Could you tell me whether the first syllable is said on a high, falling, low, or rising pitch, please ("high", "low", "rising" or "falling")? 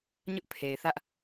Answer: high